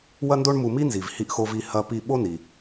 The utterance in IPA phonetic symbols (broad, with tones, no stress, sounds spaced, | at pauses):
w ɐ˥ n d o˥ ɳ m u˧ m i˥ n z i˩ v h i˧ ʔ x o˧ v i˧ h ɐ˧ p i˧ ɓ o˥ n i˩